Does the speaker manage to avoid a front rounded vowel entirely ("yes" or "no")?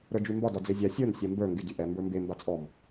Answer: no